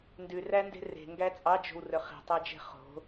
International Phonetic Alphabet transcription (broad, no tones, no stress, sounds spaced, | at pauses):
n d ʉ r æ n d e̤ r e̤ ŋ ɡ æ t͡sʼ ɑ d͡ʒ o̤ w r ɵ χ i̤ tˤ æ d͡ʒ e̤ χ o̤